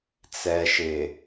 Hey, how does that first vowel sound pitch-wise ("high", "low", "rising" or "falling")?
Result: low